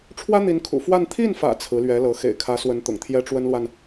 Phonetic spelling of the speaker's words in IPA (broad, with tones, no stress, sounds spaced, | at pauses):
ʈ͡ʂʰ w ä˥ n̪ i˧˥ n kʰ ṵ˨˩ f w a˥˧ n t̪ʰ i˥˩ n f ä̰˨˩ t͡sʰ ɹ̩˧˥ l ɥ ɛ˧˥ l ɤ˧˥ x ḛ˨˩ ɪ̯ kʰ ä˧˥ s w ə˧˥ n t̪ ʊ̰˨˩ ŋ t̪ʰ j ɛ˥ ʈ͡ʂ w ə˥ n l w a˨ n